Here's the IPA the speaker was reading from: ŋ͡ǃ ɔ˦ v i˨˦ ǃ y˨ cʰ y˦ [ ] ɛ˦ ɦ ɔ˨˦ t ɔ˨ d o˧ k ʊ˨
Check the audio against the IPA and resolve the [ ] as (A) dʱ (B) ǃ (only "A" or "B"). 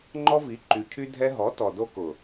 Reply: A